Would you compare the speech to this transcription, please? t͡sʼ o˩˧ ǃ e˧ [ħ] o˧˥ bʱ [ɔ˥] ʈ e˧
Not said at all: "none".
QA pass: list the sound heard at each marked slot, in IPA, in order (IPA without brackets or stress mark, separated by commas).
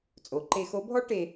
x, ɔ˥